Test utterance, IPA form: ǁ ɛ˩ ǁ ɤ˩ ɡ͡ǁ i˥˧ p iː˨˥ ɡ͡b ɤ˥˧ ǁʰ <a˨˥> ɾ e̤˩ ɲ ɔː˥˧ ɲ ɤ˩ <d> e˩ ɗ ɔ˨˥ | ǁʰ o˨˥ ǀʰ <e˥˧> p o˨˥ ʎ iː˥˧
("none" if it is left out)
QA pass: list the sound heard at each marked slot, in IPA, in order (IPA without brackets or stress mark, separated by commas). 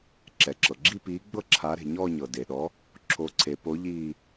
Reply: a˨˥, d, e˩˧